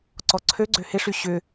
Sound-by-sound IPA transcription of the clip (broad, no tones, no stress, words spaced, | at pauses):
ǀɔǀʰøɡ͡ǀø hɪʂy ɕʏ